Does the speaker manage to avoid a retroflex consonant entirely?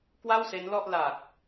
yes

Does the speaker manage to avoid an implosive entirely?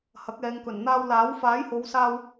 yes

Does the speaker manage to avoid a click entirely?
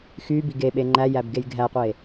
no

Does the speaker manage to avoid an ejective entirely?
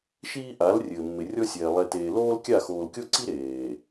yes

